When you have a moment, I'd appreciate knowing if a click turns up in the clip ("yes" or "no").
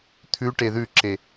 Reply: yes